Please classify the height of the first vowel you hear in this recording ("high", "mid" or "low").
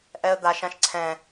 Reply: mid